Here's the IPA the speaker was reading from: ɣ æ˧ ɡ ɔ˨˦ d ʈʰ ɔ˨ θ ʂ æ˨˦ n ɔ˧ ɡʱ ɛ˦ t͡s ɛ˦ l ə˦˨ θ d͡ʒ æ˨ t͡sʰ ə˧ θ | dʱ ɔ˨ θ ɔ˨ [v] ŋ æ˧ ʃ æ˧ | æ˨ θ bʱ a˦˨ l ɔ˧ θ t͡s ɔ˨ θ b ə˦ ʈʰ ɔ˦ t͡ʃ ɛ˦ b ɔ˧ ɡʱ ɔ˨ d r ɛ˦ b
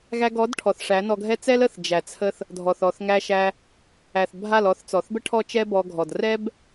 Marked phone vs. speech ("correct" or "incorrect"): incorrect